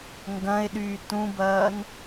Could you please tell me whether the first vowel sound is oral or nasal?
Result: nasal